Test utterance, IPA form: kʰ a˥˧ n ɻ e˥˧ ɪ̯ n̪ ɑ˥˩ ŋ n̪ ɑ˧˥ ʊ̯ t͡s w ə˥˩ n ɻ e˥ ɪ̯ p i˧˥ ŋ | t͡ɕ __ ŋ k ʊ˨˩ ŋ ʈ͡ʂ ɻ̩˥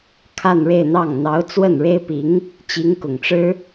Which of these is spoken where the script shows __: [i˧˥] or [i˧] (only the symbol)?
i˧˥